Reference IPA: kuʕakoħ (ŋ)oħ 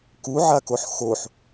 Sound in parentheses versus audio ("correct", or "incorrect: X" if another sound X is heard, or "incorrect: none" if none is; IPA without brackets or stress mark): incorrect: x